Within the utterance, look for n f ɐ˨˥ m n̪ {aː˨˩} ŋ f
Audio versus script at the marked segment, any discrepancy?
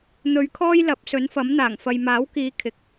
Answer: no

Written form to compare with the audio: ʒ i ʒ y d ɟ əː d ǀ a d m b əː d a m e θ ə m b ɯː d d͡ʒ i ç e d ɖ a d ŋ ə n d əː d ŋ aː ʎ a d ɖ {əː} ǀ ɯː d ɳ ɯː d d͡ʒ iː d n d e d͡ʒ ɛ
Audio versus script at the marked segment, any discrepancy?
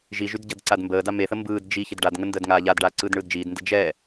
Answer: yes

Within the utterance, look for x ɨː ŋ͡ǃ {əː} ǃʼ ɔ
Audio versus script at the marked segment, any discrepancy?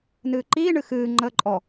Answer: no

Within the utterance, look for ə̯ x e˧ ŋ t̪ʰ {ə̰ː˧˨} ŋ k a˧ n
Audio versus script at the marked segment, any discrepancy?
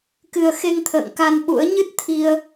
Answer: no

